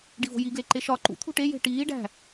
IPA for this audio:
ɖ i v o̤ j i ɡ l e ǃ e ʃ ɒ ǃ ṵ t̪ʰ ṳ ʈ e j e̤ ʈ iː ɖ æ̤

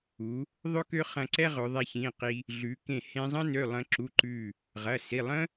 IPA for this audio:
u˩˧ | ðˤ ɵ˥ k ø˥ χ ɐ̃˧ ǀ ɛ˥ ʁ ɵ˩˧ ðˤ ɛ˧ ç ĩ˩˧˩ q i˧ | ɮ ʉ˩˧ k ẽ˧˩ h ẽ˧ zˤ ə̃˥ n ø˩˧˩ lˠ ə̃˧ ǁ u˩˧˩ ǃ ʉ˧˩ | ʁ ɐ˩˧˩ s i˩˧˩ lˠ ə̃˥

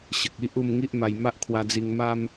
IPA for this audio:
ɕ ə˨ k̚ i˦ ʔ u˥˧ m ŋ i˦ ʔ m a˧ j m a˦ ʔ kʰ w a˧ d͡z i˧ ŋ m a˦ m

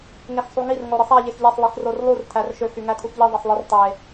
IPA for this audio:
ŋ e x sˤ u ŋ i r ŋ o ɾ ɯ sˤ æ ʎ e x ʎ e sˤ lˠ i x r o r lˠ u r tʰ æ r ʃ ø x y ŋ æ tʰ u x ʎ i ðˤ e sˤ lˠ ɯ r tˤ e

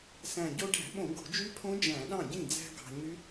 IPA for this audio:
s æ̃˨˩ ɟ o˧ ɖ æ̤˧˩˧ ɓ õ˧˩˧ ɡ o̤˧˩˧ d͡ʒ y˦˥ pʰ õ˦˥ d͡ʒ æ̃˧˩˧ ɗ ɑ̃˥˩ ɟ ĩ˥˩ d͡z æ̤˧ ɡ ɑ̤˧ ɲ y˦˥

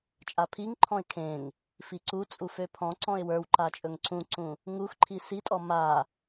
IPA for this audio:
t͡ʃʼ a pʰ i ŋ ǃʰ ɔ̃ ɪ̯ kʰ ẽ ŋ | f i ǀ u t͡sʼ u f ø pʰ ɔ̃ ǀ ɔ̃ ɪ̯ w ə˞ w ǃ a t͡ʃʼ ɵ ŋ ǀ ũ ǀ ũ | ŋ u x ǃʰ i s i tʼ ɔ m a

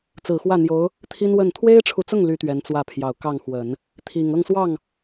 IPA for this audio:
t͡s ɹ̩˨˩ x w ä˥˩ n̪ j o˧˥ ʊ̯ | t̪ʰ i˥ n w ə˥˩ n t̪ʰ w e˥ ɪ̯ ʈ͡ʂʰ u˨ t͡s ʊ˥˩ ŋ l y˥ t̪ ɥ ɛ˧˥ n t͡s w ä˥˩ pʰ j ɑ˨˩ ʊ̯ k ɑ˥˩ ŋ x w ə˨˩˦ n | t̪ʰ i˨˩ ŋ ɤ˥˧ ŋ s w ɑ˥˩ ŋ

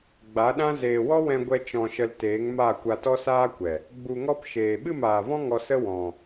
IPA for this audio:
ɡ͡b a˨˦ ɗ ã˦ z eː˨ w ɔ˦ w ɛ̃˧ ɡʷ ɛ˧ t͡ʃ ɔ̃˧ ʃ ə˧ l t eː˨˦ ŋ m a˦˨ kʷ a˧ t ɔ˦ s aː˦ kʷ ɛ˨ | ɡ͡b u˨ ŋ ɔ˧ p ʃ eː˨ ɓ ɨ˦˨ m aː˨ v ɔ̃˦ ŋ ɔ˧ s ə˦ w ɔ̃˨

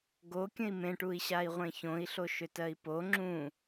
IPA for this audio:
ɡ o kʲ ə̃ i̯ m ẽ ʈ u i̯ ɕ a i̯ ʁʷ ẽ ç õ i̯ ɬ o ʃ ʏ t ɜ i̯ p o ŋ͡ǁ ũ

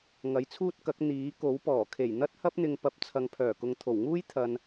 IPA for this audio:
ŋ ɐ˨˥ j t͡sʰ uː˥ t̚ k ɐ˨˥ k̚ n̪ iː˨˥ k o˨˥ w p ɔː˨˩ kʰ e˨˩ j n̪ ɐ˥ t̚ h ɐ˥ p̚ n̪ ɪ˧ ŋ p ɐ˨˥ p̚ t͡sʰ ɐ˨ ŋ pʰ œː˨˩ k ʊ˨ ŋ t̪ʰ o˨˩ w ŋ uː˥ j t̪ʰ ɐ˨ n

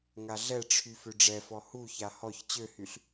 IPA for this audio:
ŋ a ɮ ɛ ʈ͡ʂʰ y f ø ɖ͡ʐ ɛ f ɔ h u ç a h ɔ ç t͡ɕ ø h y ɬ

